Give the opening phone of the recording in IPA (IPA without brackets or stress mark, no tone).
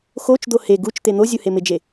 x